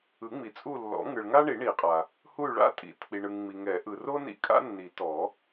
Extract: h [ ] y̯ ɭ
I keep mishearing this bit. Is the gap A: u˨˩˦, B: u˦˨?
B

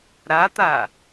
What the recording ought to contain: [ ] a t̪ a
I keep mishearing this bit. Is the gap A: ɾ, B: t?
A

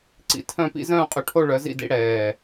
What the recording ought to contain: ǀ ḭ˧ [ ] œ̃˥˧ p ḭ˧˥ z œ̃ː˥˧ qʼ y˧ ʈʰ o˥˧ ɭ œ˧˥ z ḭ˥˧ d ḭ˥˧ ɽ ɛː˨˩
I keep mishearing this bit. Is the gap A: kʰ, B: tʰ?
B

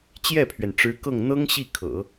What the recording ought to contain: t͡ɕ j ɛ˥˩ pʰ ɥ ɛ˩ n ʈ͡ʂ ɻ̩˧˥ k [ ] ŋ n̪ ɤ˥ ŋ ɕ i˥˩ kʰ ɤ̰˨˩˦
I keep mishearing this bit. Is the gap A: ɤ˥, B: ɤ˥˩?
B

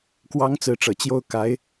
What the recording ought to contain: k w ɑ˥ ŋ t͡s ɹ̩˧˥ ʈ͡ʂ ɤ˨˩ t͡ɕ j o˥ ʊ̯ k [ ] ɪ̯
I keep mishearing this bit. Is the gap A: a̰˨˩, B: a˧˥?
B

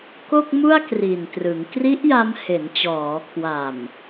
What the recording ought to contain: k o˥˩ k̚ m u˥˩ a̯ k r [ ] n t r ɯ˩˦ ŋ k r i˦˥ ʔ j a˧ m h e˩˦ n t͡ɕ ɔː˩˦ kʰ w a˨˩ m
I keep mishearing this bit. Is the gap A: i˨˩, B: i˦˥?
A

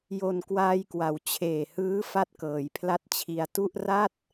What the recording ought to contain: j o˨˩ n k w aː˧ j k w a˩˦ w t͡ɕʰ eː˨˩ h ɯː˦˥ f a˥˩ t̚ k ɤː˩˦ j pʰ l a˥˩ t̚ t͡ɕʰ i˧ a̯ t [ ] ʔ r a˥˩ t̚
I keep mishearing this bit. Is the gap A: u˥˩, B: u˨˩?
A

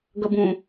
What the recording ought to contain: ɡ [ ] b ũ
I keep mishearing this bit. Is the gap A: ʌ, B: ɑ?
A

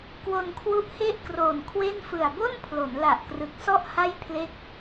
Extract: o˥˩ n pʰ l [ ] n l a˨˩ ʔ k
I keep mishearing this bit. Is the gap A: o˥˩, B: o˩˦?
B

